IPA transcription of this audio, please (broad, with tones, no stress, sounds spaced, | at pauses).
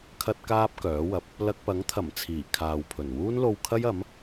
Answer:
kʰ ɐ˥ t̚ k aː˥ p̚ k œː˨˥ w ɐ˨˥ p̚ | l ɐ˧ k̚ p ɐ˨˥ ŋ t̪ʰ ɐ˨˩ m t͡sʰ iː˨˩ kʰ aː˨ w pʰ ɵ˨˩ n w uː˥ n l o˧ w kʰ ɐ˥ j ɐ˨˥ m